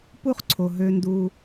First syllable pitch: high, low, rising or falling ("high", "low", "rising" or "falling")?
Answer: high